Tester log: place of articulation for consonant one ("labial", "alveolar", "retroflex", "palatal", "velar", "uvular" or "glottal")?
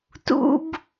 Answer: alveolar